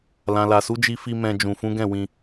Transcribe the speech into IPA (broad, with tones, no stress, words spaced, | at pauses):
lã˨la˨su˨˦ d͡ʒi˧fi˧ mɛ̃˧ d͡ʒũ˨fũ˨˦ɡɛ̃˦˨ wĩ˧